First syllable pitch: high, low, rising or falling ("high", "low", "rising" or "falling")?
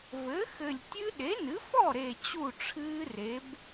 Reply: rising